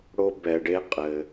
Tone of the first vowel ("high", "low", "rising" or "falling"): high